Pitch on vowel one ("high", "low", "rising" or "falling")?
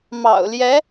low